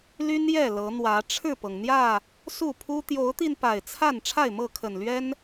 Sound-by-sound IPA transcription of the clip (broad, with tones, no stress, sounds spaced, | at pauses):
l y˦ n j ɛ˥˨ l ɤ˨˦ n̪ w ä˨˦ ʈ͡ʂʰ ɻ̩˥˨ p ɤ˩ ŋ n̪ j ä˥˨ | s u˥˨ pʰ u˦ t̪ j o˨˦ ʊ̯ t̪ i˧ n p a˨˩ ɪ̯ t͡sʰ a˥˨ n ʈ͡ʂʰ a˥˨ ɪ̯ m ɤ˥˨ kʰ ə˨˩ n l ɥ ɛ˦ n